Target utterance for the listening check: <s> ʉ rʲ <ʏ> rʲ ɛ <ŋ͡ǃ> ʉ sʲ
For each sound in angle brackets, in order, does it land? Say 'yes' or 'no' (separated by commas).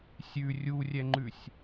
no, no, yes